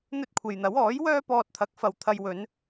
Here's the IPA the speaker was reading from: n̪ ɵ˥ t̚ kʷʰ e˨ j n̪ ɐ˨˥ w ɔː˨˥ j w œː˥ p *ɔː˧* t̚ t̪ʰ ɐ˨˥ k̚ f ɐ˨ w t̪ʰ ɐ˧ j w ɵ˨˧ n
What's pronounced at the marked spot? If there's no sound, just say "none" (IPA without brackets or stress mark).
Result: ɔː˧